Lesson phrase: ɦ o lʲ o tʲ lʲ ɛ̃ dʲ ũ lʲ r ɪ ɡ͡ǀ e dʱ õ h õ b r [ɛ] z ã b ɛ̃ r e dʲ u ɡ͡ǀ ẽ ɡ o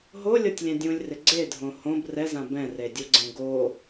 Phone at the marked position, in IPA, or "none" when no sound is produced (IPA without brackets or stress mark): ɛ